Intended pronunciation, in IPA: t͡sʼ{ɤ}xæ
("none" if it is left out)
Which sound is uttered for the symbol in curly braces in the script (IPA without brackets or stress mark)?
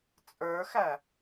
ə˞